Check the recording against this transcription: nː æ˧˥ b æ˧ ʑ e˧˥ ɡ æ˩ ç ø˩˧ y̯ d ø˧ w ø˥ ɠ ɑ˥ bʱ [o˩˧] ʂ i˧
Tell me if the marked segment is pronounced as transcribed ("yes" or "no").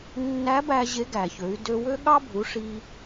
no